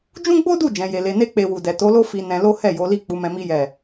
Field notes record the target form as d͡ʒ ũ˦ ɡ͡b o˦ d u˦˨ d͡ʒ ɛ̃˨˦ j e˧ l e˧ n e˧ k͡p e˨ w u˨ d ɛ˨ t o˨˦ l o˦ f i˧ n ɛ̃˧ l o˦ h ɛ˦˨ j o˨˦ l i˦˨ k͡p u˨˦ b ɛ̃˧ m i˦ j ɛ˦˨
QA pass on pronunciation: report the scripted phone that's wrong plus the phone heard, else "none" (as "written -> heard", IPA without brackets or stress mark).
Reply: b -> m